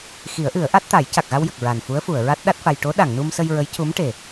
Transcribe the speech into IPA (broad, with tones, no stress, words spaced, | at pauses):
xi˨˩˦ə̯ʔɨ˨˩˦ə̯ʔa˦˥t̚t̪a˨˩˦j ca˨˩k̚ɣa˧wjə˨˩k̚ ɹa˨˩nfu˧˥ə̯fu˨˩˨ə̯ɹa˦˥t̚ ɗa˦˥t̚fa˧j ʈo˧˥ɗa˨˩˨ŋnu˧msə˧j ɹə˧˥jcu˧˥mʈe˨˩